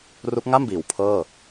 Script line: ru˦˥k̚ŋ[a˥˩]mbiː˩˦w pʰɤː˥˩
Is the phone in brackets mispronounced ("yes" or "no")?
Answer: no